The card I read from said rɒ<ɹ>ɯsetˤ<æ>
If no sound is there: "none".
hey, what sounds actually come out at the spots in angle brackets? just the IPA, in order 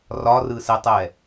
r, ɛ

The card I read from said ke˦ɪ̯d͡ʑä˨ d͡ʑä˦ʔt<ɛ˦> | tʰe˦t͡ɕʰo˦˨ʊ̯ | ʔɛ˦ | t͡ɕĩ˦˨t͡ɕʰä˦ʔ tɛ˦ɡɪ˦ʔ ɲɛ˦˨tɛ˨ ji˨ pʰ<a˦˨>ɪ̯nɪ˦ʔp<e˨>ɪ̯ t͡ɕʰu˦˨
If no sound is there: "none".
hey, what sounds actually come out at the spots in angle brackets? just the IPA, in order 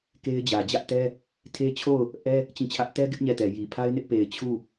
ɛ˦, a˦, e˨

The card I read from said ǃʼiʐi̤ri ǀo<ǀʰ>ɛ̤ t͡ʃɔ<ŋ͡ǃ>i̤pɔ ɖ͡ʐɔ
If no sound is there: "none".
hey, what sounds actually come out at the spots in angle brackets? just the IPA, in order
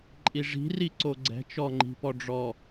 ɡ͡ǀ, ŋ͡ǃ

